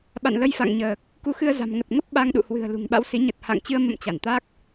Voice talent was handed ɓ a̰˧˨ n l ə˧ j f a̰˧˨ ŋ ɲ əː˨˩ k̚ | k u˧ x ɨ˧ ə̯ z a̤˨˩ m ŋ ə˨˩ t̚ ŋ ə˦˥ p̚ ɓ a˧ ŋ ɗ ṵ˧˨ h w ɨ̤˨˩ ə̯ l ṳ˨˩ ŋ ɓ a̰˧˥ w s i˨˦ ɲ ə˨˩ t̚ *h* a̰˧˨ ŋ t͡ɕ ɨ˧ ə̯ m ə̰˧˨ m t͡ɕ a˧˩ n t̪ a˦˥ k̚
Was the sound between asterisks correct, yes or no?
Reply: yes